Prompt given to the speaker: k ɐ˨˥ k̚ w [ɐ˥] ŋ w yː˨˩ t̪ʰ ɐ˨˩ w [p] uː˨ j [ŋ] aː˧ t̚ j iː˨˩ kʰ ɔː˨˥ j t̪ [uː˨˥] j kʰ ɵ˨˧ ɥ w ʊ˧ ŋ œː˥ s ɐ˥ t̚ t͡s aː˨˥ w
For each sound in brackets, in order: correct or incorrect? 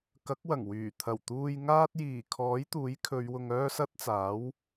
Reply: incorrect, incorrect, correct, correct

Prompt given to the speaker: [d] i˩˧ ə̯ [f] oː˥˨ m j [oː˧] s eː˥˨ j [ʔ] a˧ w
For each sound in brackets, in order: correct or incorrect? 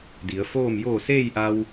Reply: correct, correct, incorrect, correct

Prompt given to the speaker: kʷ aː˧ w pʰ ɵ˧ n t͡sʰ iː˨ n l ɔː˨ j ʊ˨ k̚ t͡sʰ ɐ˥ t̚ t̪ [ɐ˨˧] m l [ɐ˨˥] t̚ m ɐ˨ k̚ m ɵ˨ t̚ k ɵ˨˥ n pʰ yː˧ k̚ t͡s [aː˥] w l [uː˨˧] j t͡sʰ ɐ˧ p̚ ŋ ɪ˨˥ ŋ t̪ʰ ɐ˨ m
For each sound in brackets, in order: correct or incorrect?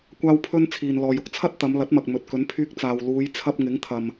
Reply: correct, correct, incorrect, correct

